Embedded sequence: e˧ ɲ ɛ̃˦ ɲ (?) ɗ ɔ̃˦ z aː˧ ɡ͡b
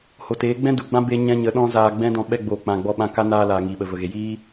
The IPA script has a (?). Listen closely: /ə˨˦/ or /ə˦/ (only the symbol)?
ə˨˦